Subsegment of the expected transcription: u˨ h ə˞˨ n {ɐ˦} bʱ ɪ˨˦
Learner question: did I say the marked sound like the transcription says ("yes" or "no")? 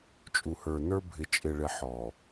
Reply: no